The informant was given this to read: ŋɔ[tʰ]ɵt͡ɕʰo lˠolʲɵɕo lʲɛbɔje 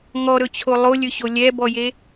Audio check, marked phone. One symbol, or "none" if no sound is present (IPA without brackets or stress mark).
ɾ